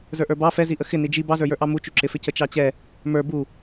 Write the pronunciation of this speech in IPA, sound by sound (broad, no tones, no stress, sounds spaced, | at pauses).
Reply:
z ə˞ ʔ ə˞ b ɑ f ɛ z i ʔ ə x ɪ n i d͡ʒ i b ɑ z ə˞ j ə˞ ʔ ɑ m u t͡ʃ u ǁ ɪ f ɪ c ə t͡ʃ ɑ t͡ɕ ɛ | m ə˞ b u